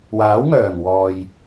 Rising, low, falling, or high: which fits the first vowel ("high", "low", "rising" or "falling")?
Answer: rising